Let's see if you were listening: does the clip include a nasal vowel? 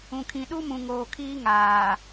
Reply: yes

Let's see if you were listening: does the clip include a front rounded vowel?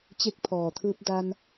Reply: no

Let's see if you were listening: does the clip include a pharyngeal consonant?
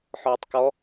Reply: yes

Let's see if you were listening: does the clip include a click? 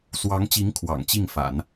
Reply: no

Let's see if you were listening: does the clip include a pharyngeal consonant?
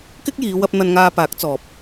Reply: no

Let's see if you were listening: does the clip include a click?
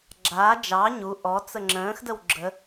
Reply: yes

